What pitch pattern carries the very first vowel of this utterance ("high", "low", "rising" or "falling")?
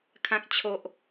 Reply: high